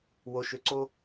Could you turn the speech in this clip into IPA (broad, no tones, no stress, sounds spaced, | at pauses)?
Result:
w o ʃ ʏ ǀ o